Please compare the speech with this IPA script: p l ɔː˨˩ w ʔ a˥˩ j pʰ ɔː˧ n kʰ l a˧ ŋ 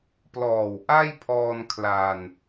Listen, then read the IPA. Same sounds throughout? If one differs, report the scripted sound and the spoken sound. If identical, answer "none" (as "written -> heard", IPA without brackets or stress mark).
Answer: ŋ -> n